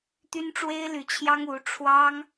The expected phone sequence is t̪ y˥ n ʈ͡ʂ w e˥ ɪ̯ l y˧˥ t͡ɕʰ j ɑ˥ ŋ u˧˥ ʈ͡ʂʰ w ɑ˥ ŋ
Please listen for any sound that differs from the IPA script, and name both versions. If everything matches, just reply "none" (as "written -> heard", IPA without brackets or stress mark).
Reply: none